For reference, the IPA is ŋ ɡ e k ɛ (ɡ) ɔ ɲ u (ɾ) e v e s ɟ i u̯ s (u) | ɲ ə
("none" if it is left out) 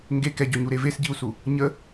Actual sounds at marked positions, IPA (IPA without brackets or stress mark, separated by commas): ɟ, ɾ, u